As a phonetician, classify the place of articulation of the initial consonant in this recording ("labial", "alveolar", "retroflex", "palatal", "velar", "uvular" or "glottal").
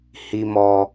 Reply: glottal